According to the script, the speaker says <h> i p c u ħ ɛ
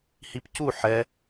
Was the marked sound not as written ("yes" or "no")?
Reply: no